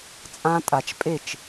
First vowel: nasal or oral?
nasal